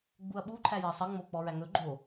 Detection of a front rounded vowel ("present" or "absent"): absent